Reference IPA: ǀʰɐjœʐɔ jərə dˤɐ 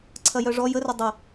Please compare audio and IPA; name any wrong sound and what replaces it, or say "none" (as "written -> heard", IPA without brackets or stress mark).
none